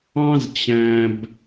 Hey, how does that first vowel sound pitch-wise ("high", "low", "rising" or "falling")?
high